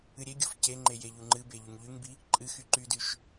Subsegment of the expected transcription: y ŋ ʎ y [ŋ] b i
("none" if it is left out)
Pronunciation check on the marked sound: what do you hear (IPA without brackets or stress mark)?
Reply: ŋ